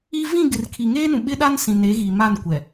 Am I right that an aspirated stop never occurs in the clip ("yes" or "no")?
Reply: no